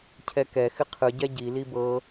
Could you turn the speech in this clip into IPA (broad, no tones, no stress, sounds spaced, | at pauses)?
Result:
cʰ ɛ k ɛ x ɪ qʰ ɯ ɟ ɛ ɟ i l i b ɤ